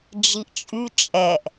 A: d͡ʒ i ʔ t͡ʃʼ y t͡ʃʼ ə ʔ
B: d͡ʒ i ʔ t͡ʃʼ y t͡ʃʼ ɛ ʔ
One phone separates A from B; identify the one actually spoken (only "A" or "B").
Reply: B